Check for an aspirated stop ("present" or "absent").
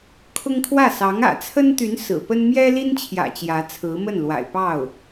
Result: present